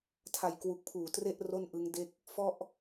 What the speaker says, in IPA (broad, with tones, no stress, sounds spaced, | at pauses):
tʰ a˨˩ j k w u˨˩ k̚ pʰ uː˨˩ t r e˥˩ ʔ r o˥˩ n ʔ ɯ˦˥ ŋ d e˥˩ k̚ | f ɔ˥˩ ʔ